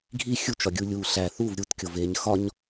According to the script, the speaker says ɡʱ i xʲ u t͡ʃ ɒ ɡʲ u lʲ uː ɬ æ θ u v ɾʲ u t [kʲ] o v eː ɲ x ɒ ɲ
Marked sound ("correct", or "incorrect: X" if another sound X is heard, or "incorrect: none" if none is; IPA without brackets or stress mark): correct